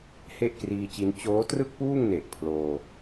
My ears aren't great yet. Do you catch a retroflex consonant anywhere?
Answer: no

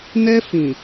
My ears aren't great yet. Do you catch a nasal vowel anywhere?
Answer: yes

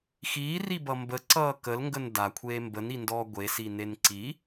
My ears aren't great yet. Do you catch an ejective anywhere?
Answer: no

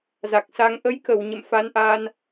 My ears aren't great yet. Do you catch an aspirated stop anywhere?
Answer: no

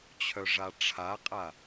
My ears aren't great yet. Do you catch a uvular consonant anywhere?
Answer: yes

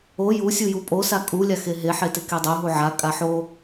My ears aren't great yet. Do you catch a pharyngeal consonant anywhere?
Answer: yes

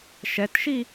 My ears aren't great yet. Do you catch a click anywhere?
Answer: no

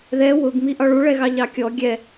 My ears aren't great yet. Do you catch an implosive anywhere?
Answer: no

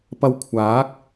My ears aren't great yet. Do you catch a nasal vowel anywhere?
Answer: no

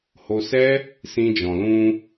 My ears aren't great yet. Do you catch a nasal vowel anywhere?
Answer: yes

